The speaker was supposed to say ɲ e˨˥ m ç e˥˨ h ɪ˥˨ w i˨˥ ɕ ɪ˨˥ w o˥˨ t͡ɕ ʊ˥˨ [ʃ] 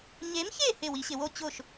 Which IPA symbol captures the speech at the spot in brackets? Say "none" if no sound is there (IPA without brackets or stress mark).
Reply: ʃ